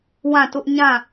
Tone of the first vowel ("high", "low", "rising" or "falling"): falling